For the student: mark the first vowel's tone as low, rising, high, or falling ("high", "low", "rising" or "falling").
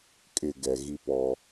low